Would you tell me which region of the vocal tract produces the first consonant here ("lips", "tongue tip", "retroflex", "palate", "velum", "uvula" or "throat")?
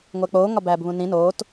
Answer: velum